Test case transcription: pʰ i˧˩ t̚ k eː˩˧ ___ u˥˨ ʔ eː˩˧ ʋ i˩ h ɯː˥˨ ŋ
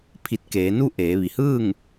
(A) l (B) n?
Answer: B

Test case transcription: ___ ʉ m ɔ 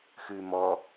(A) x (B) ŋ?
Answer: A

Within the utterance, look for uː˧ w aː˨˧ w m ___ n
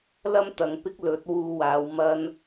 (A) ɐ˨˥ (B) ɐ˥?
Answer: B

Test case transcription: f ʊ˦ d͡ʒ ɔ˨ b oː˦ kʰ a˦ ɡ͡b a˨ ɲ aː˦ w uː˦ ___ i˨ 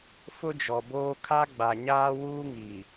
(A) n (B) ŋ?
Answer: B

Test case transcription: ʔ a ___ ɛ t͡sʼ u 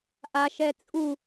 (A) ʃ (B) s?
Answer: A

